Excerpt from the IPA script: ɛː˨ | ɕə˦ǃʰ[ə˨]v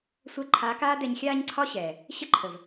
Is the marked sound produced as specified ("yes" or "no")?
yes